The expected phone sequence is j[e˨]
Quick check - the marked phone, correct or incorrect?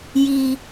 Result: incorrect